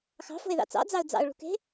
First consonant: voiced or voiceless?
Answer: voiceless